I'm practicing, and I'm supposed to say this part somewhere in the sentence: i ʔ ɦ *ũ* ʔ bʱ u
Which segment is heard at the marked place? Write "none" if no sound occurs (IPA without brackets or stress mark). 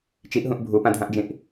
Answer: ũ